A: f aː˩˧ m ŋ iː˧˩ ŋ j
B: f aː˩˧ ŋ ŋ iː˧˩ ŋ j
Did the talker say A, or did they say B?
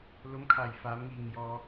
A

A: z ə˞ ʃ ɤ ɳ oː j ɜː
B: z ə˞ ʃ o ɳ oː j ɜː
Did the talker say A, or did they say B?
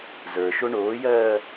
B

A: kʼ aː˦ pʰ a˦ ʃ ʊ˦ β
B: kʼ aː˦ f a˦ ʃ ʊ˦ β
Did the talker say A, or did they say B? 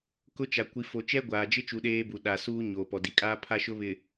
A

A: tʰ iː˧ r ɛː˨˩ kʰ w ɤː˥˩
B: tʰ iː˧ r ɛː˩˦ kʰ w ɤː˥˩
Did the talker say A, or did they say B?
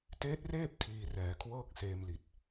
B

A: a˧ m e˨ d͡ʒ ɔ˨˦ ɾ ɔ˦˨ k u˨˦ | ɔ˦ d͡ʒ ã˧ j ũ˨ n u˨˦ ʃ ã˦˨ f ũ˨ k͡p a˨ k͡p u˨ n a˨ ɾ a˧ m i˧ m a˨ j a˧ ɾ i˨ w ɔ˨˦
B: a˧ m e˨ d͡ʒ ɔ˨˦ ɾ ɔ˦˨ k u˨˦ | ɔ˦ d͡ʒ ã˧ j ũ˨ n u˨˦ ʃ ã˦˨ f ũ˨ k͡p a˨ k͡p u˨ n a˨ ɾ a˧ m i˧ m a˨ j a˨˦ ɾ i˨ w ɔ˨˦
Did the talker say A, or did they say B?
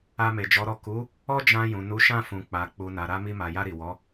A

